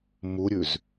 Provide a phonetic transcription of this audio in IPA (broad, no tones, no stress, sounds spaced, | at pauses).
m u ɾʲ ʉ z